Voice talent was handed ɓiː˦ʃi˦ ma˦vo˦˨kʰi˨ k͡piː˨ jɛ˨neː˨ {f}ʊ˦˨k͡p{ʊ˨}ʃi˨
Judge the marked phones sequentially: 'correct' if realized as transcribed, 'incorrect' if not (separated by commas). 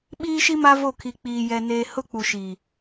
incorrect, incorrect